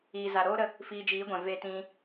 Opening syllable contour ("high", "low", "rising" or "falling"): low